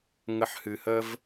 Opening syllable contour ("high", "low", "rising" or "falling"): low